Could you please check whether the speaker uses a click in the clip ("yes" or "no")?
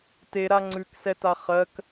yes